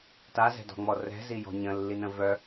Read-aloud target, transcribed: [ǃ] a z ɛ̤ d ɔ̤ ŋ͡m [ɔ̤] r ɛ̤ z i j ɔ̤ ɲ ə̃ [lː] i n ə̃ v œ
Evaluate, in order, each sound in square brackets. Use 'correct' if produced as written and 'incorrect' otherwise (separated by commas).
incorrect, incorrect, correct